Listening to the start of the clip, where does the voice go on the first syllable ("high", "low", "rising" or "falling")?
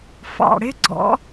low